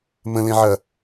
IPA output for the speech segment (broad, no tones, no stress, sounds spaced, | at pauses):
m ə̃ l ẽ ʕ ɐ